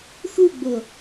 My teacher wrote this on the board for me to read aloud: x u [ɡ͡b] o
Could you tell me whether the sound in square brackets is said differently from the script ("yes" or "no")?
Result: no